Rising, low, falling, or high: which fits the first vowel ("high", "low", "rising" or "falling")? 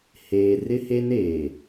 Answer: low